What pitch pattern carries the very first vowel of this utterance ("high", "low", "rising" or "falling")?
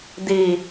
low